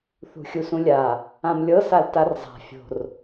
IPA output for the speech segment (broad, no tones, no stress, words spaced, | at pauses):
θṳxʲusũlʲa | ãmlʲɤ saltarzˤa̤ fʲo̤r